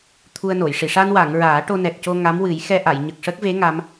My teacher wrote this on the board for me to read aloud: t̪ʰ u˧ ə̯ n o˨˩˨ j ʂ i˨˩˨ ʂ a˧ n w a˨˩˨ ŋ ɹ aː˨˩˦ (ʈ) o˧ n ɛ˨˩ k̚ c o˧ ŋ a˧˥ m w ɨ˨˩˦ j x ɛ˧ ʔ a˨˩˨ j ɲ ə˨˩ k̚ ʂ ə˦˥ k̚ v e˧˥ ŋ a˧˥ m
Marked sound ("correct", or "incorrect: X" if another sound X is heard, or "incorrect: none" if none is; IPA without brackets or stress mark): correct